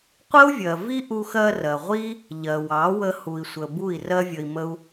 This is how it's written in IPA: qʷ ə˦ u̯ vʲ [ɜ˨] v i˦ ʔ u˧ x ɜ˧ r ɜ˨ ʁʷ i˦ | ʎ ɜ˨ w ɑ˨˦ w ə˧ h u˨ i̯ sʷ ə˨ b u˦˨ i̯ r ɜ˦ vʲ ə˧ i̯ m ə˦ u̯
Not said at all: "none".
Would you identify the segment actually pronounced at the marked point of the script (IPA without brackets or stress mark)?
ɜ˨